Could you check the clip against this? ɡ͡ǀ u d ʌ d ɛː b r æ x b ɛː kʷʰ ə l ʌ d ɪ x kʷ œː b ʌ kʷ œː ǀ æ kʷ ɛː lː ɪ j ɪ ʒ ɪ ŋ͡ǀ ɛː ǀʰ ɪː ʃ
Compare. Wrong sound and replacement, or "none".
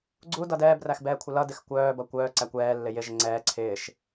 none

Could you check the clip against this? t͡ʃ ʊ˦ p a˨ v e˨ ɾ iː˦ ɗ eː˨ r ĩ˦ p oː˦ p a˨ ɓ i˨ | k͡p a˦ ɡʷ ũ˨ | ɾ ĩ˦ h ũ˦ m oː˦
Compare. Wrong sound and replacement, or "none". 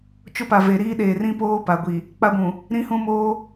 ɓ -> ɡʷ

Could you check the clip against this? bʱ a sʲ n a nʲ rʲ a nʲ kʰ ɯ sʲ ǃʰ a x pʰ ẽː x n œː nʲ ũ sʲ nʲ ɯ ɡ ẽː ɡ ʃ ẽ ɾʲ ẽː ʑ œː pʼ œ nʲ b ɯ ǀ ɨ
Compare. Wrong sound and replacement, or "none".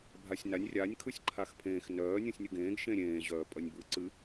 none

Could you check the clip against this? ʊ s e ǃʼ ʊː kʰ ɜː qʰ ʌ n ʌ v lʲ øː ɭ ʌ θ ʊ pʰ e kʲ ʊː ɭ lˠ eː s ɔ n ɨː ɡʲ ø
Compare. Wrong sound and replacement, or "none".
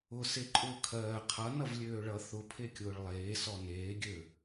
ɨː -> eː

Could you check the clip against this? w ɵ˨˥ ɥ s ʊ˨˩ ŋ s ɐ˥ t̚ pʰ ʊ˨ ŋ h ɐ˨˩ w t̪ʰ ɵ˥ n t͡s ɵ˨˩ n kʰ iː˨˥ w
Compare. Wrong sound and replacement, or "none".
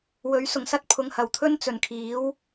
none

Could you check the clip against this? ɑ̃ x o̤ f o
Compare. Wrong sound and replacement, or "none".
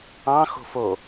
none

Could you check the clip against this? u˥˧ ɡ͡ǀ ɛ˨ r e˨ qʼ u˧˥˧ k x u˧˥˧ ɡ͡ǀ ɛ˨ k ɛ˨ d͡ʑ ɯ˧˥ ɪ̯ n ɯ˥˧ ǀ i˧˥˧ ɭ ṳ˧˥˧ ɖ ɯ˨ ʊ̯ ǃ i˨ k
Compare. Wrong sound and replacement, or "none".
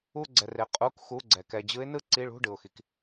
ǃ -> x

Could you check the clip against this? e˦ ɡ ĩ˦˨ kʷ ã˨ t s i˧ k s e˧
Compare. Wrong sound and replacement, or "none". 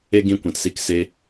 none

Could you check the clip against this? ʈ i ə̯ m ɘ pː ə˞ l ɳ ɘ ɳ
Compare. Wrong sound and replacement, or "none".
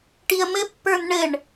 l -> n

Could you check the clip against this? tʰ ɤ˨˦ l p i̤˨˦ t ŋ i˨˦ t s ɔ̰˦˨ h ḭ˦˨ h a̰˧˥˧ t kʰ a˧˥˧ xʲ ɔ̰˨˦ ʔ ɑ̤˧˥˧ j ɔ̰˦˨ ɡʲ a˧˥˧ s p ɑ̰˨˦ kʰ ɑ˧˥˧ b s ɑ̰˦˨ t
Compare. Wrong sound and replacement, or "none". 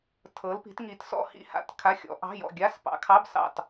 none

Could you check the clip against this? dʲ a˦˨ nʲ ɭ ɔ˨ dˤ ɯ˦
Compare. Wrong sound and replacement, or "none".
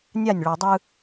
dʲ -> nʲ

